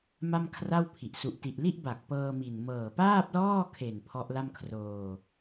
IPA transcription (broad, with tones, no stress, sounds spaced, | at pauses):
m a˥˩ m kʰ r a˥˩ w pʰ i˨˩ ʔ s u˨˩ ʔ t i˨˩ ʔ l i˥˩ ʔ b a˨˩ k̚ p ɤː˧ m i˨˩ n m ɤː˨˩ p aː˥˩ p̚ l ɔː˥˩ kʰ e˨˩ n pʰ ɔ˦˥ ʔ l a˥˩ m kʰ r oː˧